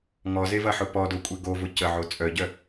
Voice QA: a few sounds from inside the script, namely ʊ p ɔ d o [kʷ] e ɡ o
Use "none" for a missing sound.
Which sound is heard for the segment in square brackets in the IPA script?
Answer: kʷʼ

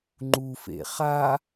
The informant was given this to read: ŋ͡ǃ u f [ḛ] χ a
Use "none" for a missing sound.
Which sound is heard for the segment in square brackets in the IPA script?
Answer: ḛ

